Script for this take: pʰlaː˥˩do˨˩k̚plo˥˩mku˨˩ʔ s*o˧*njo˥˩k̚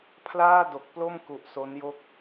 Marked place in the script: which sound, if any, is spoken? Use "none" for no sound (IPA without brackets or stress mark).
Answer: o˦˥